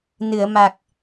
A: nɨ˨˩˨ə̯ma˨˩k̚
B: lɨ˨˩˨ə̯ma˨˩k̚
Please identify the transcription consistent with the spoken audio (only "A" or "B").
A